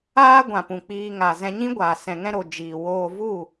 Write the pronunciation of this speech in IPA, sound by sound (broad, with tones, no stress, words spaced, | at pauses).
aː˦ɡʷã˨pũ˨ k͡piː˦ŋa˧ zɛ̃˧ɲĩ˦ɡʷaː˨ sɛ̃˧ŋɛ̃˦ ɾo˨ d͡ʒiː˨woː˧vu˦˨